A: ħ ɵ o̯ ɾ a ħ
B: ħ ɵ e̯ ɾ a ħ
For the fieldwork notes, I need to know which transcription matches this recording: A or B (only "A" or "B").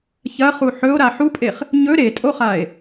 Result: A